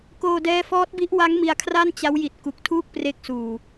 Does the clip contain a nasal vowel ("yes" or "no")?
no